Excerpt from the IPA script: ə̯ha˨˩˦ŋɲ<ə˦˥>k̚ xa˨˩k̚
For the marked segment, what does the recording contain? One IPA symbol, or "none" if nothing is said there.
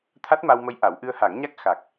a˦˥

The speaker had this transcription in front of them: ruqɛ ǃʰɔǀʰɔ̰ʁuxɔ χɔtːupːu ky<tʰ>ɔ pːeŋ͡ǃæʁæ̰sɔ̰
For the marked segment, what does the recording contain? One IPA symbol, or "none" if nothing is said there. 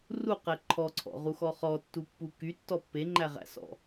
tː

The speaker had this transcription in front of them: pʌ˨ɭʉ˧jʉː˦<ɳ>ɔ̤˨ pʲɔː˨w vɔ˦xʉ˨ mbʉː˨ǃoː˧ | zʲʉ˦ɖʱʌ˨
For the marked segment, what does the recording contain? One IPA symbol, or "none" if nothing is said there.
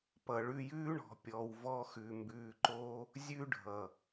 ɳ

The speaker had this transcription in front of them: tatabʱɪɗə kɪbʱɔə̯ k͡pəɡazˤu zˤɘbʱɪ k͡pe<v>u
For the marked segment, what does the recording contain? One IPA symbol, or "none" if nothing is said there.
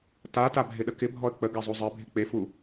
f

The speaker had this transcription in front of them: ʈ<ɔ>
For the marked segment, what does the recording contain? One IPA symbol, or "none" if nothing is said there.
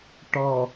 ɔ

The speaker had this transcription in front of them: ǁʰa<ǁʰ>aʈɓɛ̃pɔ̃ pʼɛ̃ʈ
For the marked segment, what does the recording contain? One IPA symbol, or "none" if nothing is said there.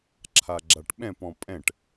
ɡ͡ǁ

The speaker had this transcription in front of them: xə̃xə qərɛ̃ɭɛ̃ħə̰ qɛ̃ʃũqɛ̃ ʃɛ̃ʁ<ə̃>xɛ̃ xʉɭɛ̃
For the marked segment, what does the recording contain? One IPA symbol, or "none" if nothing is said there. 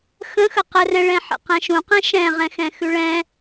ɛ̃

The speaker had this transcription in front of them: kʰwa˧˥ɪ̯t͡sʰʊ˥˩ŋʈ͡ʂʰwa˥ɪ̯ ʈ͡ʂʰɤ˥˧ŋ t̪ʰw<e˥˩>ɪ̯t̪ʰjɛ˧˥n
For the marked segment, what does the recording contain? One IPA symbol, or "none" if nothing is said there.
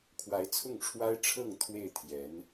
e˥˩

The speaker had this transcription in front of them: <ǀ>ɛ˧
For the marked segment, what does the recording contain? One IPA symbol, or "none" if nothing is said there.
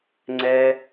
ŋ͡ǀ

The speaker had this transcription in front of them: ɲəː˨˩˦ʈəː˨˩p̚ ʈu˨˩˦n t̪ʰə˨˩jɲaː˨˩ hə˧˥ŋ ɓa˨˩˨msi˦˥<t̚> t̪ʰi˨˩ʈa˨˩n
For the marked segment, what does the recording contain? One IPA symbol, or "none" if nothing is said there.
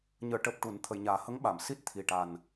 t̚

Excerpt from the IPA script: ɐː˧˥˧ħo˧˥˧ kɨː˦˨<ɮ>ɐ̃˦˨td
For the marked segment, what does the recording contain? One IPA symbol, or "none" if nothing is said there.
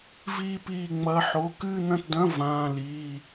n̪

